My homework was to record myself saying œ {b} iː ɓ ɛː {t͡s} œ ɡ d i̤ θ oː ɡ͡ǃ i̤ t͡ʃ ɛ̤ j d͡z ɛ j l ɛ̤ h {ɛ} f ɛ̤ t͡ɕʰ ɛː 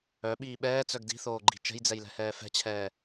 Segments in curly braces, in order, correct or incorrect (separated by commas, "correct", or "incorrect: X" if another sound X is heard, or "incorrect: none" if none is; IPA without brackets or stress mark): incorrect: ɓ, correct, incorrect: ɛː